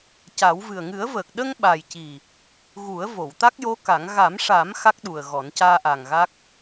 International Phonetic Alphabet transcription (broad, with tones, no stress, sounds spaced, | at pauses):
c a˨˩˦ w v ɨ˨˩ ə̯ ŋ ɨ˨˩˦ ə̯ v əː˨˩ k̚ ɗ ə˧ ŋ ɓ a˨˩ j c i˨˩ | ɣ u˨˩˦ ə̯ v o˨˩˨ w t̪ a˦˥ k̚ j o˧˥ k a˨˩˦ ŋ ɣ a˨˩˦ m ʂ a˨˩˦ m x a˦˥ k̚ ɗ u˨˩ ə̯ ɣ ɔ˨˩˦ n c aː˧ ʔ a˨˩ ŋ ɣ a˦˥ k̚